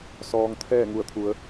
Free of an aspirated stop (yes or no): no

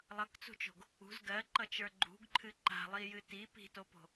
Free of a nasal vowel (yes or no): yes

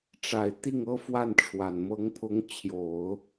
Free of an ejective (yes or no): yes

